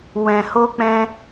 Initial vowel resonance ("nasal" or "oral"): nasal